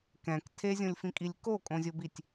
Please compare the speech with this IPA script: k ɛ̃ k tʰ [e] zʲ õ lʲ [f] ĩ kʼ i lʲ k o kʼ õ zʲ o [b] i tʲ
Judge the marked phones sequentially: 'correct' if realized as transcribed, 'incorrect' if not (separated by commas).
correct, correct, correct